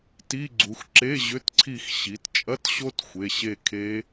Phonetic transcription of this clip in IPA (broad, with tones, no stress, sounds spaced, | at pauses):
t i˧˥˧ ɡ͡ǀ u˩˧ x ǁ e˧˥˧ ʑ ʏ˧˥˧ t ǀʰ i˦˨ x ɕ i˩˧ t t͡ʃʼ ɐ˧˥˧ t ɕ o˦˥ t xʷ e˩˧˩ ɕ e˦˨ kʰ e˦˥